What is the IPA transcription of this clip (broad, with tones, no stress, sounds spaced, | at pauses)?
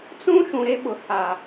t͡s ũ˦ ʃ ũ˨ ɾ e˦ ɓ ʊ˨ h a˨